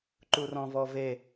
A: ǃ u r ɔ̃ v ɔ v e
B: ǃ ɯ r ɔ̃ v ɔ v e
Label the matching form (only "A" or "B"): A